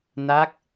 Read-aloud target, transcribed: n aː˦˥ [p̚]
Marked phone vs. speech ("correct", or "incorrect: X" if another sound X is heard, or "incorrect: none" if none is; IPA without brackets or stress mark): incorrect: k̚